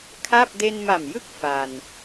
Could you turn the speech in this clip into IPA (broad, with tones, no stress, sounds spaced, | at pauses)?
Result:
kʰ a˥˩ p̚ d e˧ n m a˨˩ m j ɯ˦˥ k̚ f a˧ n